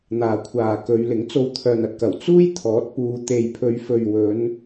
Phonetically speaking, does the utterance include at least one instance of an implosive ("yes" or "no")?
no